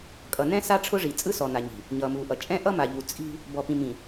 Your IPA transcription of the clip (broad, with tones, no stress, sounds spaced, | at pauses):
kʼ ʌ˨ n ɛ̃˦ s a˦ ʈ͡ʂʰ ʊ˦ ʐ i˨ t͡sʼ ɯ˦ s ɔ˨ n a˨ ɲ i̤˨ | ɲ ʌː˨ m uː˨ ʔ ʌ˨ t͡ʃʼ ɛ̃˦ ʔ ʌ˦ m a˨ ʎ u˨ t͡sʼ i̤˦ | b ɔ˨ p ĩ˨ m ĩ˨